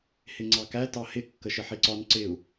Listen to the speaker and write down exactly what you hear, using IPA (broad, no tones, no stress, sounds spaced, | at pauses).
h ɪ ŋ͡ǀ ɑ k æ t ɑ h ɪ kː ə ʃ ɪ ħ i ǀ ɒ n ǀ ɪ u̯